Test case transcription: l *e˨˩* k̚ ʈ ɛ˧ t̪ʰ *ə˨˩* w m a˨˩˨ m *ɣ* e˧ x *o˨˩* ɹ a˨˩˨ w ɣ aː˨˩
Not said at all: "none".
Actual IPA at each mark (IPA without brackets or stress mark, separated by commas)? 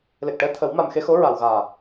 e˨˩, ə˨˩˦, x, o˧˥